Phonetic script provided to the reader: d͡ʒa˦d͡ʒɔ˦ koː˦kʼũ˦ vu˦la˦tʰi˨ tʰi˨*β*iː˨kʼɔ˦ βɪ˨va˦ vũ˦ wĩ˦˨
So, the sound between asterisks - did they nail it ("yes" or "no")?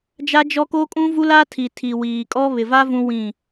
no